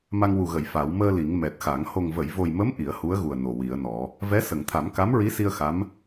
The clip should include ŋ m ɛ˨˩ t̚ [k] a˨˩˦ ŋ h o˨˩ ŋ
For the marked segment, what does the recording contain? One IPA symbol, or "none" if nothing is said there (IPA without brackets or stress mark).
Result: x